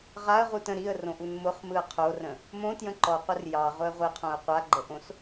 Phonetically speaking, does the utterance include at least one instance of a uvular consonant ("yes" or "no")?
yes